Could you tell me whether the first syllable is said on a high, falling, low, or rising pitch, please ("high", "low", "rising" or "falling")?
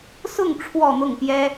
falling